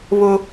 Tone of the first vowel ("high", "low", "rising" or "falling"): high